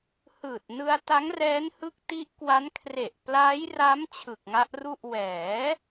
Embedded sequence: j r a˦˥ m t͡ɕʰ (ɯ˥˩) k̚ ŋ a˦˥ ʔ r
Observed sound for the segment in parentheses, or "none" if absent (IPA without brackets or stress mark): ɯ˨˩